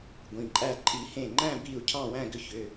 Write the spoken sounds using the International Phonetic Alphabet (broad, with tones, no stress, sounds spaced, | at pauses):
ɡʷ ĩ˩˧˩ ǃʼ æ˥˧ ǃʼ i˨˩˦ h ẽ˧˩ ŋ͡ǃ æ̃˥˧ b i˥˧ u̯ cʰ ɑ̃˥˧ w æ̃˥˧ ɡ ʏ˥˧ ç ʏ˩˧˩